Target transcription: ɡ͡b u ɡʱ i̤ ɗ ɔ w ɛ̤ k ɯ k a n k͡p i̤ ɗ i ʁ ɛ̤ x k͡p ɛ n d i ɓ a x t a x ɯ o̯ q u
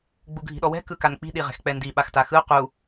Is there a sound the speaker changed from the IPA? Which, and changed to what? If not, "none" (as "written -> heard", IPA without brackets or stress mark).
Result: none